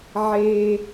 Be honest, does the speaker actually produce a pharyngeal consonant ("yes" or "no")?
yes